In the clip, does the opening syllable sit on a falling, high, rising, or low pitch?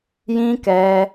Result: high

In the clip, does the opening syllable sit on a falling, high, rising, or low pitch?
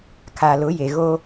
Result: low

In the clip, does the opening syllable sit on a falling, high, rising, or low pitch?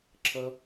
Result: high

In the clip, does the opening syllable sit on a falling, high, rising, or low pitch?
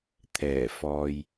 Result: low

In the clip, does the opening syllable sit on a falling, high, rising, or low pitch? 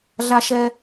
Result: high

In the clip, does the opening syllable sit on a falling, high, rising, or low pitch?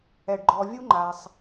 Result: low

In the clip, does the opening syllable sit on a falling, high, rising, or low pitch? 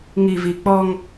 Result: low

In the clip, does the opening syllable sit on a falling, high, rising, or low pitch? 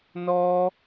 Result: high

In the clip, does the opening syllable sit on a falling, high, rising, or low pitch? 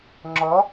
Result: rising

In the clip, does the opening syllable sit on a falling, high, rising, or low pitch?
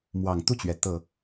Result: low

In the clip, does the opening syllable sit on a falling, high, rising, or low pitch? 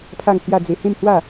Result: falling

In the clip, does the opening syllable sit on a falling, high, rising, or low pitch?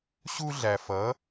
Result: high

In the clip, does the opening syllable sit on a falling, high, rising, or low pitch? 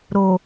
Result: low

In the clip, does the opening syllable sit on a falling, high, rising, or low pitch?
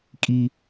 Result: high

